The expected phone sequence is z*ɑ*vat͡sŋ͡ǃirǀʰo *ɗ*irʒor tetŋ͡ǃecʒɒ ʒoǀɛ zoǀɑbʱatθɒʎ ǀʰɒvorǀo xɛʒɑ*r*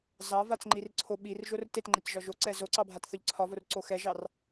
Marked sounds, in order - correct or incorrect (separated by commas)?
correct, incorrect, correct